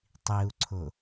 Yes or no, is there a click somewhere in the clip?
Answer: yes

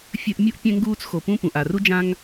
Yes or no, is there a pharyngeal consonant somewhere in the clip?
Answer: no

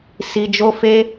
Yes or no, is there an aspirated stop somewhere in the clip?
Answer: no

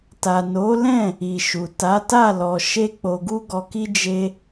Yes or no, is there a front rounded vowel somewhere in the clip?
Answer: no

